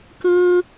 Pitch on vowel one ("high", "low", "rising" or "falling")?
high